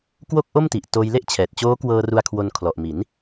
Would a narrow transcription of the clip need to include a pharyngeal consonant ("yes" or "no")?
no